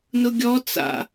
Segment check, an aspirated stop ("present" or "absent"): absent